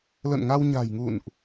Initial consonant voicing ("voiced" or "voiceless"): voiced